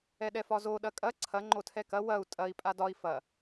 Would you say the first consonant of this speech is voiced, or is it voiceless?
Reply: voiced